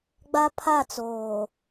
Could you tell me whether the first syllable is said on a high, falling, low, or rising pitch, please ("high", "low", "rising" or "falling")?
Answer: high